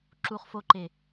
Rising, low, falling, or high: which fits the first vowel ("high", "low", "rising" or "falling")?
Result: low